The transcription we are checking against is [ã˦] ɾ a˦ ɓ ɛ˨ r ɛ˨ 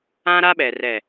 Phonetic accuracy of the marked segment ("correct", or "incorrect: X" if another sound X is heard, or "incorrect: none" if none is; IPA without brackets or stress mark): correct